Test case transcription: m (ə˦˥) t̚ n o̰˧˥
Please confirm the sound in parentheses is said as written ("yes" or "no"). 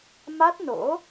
no